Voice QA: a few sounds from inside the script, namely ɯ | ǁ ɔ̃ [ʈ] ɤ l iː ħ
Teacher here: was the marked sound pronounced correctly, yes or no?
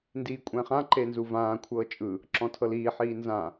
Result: no